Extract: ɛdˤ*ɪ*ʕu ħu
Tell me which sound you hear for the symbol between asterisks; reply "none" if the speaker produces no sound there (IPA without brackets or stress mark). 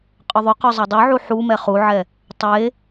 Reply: y